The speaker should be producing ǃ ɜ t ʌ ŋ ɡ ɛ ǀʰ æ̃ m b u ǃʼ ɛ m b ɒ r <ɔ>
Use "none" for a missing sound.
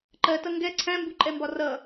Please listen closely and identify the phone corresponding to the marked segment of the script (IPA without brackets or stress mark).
ʌ